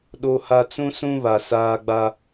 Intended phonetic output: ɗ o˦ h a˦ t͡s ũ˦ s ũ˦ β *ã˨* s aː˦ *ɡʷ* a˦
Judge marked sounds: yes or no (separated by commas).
no, no